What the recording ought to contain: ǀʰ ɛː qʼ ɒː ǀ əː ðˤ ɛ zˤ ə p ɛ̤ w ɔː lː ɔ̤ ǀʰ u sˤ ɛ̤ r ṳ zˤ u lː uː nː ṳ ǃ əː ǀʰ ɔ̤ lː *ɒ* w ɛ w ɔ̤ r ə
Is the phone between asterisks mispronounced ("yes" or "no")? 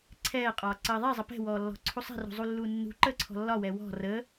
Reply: no